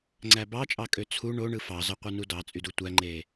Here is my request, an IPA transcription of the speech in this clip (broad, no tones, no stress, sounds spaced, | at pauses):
ŋ͡ǀ æ b ɑ t͡ʃʼ ɑ kʼ ø t͡sʰ u ɳ o ɳ ɯ f ɑ z ɑ qʷ ɯ n u d ɑ t͡sʼ y d u tʷ æ ŋ͡ǃ e